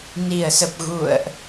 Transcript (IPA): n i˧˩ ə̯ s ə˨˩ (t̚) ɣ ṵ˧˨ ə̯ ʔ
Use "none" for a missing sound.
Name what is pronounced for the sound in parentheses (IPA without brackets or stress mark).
p̚